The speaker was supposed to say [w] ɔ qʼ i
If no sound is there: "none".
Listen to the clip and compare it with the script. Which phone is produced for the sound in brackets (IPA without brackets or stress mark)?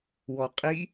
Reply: w